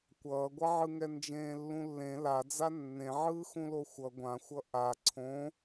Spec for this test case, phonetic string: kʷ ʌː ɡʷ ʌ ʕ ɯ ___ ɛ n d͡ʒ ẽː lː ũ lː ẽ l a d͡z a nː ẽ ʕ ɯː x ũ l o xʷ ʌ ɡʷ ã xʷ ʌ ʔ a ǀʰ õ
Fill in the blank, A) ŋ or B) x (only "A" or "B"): A